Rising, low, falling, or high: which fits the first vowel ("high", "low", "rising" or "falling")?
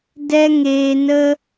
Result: high